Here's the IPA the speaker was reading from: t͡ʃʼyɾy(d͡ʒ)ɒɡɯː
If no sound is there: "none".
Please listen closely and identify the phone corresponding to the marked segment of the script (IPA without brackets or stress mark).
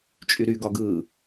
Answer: ɡ